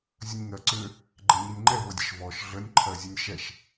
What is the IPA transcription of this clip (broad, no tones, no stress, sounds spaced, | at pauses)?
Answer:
zʲ ə nʲ ŋ ɜ ǀ ʏ | ɡ͡ǃ ɛ ɲ i nʲ ŋ͡ǃ ɛ v ɤ dʲ ə ʃ v ɔ ʃ ɮ ə nʲ ǃʰ ɜ zʲ ə nʲ ʃ ɛ ʃ